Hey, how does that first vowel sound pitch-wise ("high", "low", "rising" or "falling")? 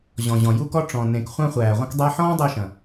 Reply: low